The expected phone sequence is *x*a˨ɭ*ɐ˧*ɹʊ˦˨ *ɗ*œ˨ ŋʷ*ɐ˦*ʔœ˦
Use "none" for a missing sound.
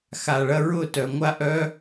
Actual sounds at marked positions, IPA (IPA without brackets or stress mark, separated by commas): x, ɐ˦, t, a˦